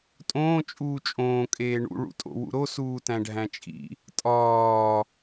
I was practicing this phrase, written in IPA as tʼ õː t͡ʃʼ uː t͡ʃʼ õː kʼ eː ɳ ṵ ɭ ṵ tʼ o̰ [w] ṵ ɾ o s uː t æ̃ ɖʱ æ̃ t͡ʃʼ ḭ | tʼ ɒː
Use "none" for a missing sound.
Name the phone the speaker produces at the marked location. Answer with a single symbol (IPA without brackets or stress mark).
w